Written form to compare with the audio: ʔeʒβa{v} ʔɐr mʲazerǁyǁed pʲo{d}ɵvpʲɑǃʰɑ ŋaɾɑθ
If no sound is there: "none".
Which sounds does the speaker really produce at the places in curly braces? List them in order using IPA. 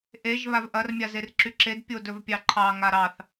v, d

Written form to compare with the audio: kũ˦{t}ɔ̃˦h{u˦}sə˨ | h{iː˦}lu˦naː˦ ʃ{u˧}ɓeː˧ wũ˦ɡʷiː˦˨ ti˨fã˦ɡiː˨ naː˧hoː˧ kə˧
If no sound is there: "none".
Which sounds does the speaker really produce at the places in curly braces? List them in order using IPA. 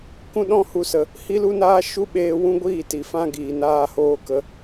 ɗ, u˧, i˦, u˦

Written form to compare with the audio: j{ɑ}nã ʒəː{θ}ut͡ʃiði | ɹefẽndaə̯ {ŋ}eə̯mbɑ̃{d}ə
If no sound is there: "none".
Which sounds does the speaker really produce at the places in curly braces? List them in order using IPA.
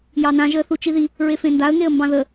ɑ, θ, ŋ, ð

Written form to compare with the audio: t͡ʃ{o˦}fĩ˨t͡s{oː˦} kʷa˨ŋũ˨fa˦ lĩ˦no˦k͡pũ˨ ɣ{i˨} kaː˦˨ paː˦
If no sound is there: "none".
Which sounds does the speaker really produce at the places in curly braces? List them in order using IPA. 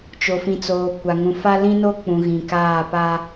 o˨, oː˨, ĩ˨

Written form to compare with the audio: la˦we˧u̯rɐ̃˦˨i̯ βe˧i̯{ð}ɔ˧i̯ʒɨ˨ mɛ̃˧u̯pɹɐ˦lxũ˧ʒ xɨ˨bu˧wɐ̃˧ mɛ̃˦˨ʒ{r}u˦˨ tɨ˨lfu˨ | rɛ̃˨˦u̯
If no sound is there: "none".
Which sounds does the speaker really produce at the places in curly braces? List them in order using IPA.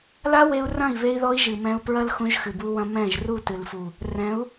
ð, r

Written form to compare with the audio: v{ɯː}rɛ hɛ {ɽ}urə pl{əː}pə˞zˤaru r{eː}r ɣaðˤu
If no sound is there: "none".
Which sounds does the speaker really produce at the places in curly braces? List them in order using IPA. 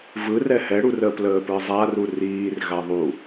ɯ, ɽ, əː, iː

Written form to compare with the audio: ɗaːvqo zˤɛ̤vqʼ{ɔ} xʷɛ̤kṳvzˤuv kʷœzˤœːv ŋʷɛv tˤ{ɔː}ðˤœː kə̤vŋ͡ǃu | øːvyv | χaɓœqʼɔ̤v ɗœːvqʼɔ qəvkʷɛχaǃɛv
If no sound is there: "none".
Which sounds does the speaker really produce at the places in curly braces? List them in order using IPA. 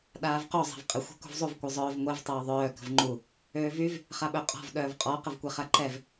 ə, oː

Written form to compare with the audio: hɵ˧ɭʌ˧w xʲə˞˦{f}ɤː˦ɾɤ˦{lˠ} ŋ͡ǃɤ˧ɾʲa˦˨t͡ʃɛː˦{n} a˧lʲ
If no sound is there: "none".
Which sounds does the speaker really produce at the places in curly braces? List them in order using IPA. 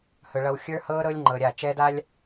h, lʲ, d

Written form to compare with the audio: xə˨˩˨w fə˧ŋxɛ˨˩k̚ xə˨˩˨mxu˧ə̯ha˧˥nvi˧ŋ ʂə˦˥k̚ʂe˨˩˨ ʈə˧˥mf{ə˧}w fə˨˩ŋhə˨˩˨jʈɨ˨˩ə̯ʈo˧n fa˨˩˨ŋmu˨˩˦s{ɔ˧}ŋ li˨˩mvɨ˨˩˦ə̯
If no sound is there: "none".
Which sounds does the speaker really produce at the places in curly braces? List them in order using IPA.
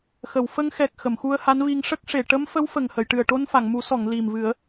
ə˧˥, ɔ˨˩˨

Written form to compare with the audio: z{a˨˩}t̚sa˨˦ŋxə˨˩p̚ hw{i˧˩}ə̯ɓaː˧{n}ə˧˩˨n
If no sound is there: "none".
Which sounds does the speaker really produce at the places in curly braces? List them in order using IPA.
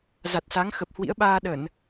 a˨˩, ḭ˧˥, ɗ

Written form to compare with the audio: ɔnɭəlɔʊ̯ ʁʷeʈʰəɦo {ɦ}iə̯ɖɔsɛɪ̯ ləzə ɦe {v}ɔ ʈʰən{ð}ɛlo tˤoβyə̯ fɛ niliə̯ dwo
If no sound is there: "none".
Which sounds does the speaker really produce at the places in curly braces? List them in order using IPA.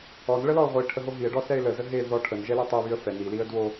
ɦ, ð, ʒ

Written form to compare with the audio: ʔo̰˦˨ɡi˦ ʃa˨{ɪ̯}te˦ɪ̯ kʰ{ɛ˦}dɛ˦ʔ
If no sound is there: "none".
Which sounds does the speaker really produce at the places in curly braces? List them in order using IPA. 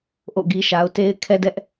ʊ̯, ɛ˦

